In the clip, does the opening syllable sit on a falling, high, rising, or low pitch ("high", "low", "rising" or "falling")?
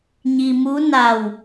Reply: low